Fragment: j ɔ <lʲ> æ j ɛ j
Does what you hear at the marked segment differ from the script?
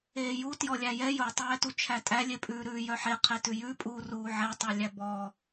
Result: no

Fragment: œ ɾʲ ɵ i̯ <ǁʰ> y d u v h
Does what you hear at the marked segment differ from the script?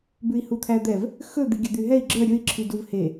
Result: no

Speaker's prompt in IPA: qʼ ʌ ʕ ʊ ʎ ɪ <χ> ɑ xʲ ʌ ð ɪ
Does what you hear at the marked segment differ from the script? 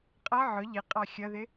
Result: yes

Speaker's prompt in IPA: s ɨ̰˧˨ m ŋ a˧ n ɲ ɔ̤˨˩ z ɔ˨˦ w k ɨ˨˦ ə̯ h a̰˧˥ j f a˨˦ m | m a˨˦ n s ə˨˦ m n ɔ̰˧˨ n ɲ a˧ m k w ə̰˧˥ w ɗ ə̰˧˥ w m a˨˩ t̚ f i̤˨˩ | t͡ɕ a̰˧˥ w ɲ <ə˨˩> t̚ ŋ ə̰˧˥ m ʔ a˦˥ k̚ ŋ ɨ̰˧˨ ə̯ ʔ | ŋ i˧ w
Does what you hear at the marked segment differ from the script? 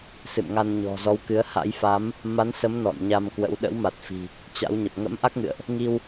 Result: no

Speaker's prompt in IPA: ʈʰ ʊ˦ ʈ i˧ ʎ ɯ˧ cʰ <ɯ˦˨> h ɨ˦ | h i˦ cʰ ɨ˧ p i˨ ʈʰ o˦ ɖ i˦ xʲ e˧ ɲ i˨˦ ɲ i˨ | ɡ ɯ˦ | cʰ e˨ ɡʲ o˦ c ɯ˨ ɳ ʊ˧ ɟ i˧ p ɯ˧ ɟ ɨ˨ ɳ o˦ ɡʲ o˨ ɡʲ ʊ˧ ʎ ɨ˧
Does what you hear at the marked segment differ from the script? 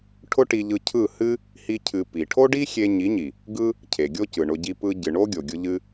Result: no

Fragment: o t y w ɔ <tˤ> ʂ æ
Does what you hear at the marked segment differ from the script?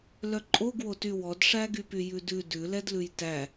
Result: yes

